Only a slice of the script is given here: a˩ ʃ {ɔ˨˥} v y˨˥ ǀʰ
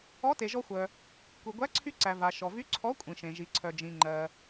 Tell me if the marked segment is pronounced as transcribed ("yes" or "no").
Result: no